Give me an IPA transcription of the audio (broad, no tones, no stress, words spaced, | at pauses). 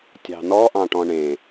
tʲɑ̤nɔʔɑ̃ʈɔ̃ ɳẽ